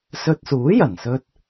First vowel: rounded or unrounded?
rounded